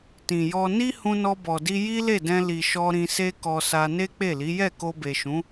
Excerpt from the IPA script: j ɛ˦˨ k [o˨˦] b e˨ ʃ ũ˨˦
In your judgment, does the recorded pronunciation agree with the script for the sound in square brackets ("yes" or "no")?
no